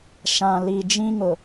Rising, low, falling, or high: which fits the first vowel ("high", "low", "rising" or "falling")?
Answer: low